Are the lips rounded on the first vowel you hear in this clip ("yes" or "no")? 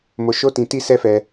yes